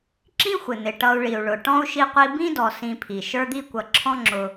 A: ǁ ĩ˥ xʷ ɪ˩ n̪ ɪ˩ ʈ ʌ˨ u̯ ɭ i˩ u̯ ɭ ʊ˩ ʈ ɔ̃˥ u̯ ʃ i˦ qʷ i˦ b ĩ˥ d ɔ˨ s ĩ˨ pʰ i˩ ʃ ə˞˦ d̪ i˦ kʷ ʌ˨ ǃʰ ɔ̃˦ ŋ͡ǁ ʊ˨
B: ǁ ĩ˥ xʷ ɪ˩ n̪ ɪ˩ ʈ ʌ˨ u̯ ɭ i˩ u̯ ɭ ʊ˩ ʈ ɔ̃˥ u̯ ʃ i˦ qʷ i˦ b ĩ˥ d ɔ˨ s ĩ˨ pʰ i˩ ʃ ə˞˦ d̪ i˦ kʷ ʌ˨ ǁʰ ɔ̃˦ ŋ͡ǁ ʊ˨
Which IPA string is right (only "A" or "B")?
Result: B